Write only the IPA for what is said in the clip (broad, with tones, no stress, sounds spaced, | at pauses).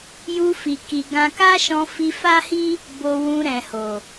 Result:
j u˧ f i˨ k i˨ ɡ ã˧ k a˦ ʃ ɔ̃˧ f i˧ f a˦ h i˦ | b o˧ w ũ˧ ɾ ɛ̃˨ h o˨